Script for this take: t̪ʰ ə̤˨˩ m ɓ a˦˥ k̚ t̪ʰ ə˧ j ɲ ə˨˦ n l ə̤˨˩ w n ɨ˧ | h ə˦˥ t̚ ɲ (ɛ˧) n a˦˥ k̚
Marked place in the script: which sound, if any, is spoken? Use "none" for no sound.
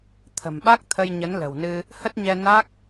ɛ˧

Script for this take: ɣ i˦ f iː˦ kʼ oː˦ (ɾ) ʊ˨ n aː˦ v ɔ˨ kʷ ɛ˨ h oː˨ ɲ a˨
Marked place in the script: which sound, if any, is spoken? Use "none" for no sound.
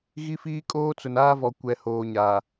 t͡s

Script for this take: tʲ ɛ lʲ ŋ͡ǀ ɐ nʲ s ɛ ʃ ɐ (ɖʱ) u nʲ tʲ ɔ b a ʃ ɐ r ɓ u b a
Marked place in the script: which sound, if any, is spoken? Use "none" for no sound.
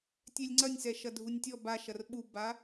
dʱ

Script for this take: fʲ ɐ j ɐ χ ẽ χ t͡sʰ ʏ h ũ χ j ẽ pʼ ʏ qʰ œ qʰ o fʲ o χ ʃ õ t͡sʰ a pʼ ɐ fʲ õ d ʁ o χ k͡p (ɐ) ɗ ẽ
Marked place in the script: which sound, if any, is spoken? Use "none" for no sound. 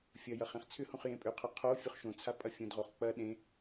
ɐ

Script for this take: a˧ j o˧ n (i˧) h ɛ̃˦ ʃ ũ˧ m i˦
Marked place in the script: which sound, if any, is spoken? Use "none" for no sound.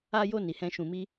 i˧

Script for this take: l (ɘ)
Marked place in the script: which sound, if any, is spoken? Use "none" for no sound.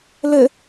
ɘ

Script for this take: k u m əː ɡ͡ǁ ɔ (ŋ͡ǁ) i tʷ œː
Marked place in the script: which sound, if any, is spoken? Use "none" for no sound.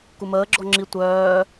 ŋ͡ǁ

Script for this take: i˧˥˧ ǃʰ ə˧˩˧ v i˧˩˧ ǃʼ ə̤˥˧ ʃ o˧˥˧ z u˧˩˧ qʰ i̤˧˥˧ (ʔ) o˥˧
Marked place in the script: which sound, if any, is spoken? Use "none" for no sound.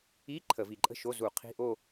ʔ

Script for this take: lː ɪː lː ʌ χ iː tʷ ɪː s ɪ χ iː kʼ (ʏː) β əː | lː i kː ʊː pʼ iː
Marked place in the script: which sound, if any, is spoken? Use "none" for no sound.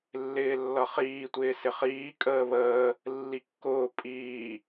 əː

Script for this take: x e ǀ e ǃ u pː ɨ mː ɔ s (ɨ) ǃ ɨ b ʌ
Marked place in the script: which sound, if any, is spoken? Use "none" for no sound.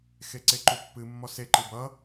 e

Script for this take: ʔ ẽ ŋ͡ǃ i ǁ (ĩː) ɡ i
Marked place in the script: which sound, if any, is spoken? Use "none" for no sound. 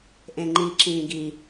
ĩː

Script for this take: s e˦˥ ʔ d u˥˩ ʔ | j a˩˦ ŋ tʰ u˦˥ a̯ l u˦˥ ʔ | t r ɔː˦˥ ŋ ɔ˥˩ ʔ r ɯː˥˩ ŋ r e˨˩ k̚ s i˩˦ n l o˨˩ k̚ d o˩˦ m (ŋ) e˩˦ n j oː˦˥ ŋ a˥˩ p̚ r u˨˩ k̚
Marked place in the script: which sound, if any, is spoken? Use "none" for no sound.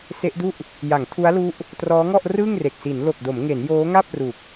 ŋ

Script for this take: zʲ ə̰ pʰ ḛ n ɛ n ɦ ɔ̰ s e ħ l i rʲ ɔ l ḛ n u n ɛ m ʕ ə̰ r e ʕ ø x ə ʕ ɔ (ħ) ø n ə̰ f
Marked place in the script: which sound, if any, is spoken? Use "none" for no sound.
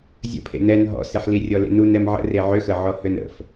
h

